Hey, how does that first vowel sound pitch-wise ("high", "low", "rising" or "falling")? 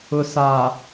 low